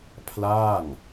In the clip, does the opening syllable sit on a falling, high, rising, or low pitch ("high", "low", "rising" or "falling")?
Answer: falling